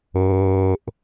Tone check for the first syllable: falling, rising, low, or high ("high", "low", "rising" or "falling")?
low